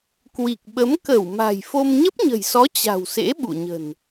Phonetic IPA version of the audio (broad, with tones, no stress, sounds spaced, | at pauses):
k w i˨˩ k̚ ɓ ə˨˦ m k ə˧˩ w m a̤˨˩ j f o˧ m ɲ ə˦˥ p̚ ɲ ə̤˨˩ j s ɔ˨˦ t͡ɕ a̤˨˩ w s ḛ˧˥ ɓ ṵ˧˨ ɲ ə̤˨˩ n